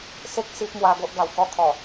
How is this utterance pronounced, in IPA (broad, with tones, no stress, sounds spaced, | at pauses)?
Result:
s e˦ k̚ s i˦ p̚ m w a˧ ɡ o˦ ʔ ɡ a˨˩ w k ɔ˧ kʰ ɔ˨˩